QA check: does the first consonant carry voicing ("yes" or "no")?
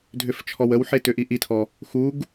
yes